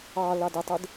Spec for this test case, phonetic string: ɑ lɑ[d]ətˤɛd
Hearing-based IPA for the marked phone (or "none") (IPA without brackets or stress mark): d